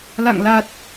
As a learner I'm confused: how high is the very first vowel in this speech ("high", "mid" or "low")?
low